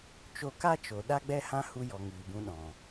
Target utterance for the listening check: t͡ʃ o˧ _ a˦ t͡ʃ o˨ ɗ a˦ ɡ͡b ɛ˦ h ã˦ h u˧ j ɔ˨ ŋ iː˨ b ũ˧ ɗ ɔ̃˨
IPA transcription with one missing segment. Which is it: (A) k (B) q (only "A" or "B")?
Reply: A